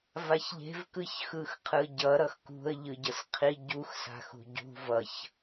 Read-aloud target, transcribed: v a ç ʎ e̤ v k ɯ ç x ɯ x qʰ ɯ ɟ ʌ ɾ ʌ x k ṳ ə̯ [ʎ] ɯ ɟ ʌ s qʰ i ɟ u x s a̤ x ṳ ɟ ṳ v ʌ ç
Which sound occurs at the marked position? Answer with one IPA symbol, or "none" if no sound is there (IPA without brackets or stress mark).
ʎ